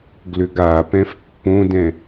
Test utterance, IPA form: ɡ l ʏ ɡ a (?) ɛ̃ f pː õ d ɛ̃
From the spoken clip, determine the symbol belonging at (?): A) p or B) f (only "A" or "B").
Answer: A